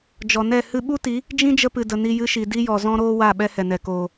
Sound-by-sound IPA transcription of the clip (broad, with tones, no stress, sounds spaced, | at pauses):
d͡ʒ ɔ˨ n ɛ˦˨ h ɨ˧ ɓ u˦ t i˨˦ | d͡ʒ ĩ˦ d͡ʒ ə˧ p ɨ˨ d ə˨ n i˧ j ɨ˧ ʃ i˨ d i˦ j ɔ˨ z ɔ̃˧ ɾ oː˧ w a˦˨ ɓ ɛ˦ h ɛ˨ n ɛ˨ k oː˨